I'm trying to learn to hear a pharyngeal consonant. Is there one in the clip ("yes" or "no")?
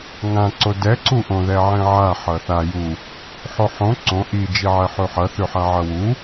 yes